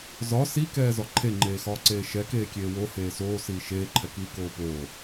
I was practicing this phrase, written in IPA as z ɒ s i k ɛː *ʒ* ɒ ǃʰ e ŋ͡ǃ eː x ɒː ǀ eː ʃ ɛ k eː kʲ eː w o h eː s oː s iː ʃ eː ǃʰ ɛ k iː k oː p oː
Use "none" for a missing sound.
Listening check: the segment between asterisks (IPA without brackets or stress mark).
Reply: z